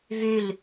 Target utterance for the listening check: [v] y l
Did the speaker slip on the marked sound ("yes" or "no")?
no